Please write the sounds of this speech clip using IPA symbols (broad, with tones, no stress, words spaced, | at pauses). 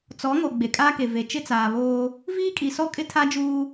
t͡sɔ˨˦ŋo˨ ɡ͡be˨kʼaː˦ke˨ ve˨ t͡ʃɪ˦t͡saː˨βoː˦ | viː˦kʼi˨sɔ˦ kʼɪ˦tʰa˦d͡ʒuː˦